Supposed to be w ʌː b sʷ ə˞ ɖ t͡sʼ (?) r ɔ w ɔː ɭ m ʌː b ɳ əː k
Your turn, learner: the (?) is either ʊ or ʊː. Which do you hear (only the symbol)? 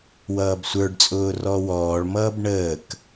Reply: ʊː